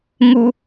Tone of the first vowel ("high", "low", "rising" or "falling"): high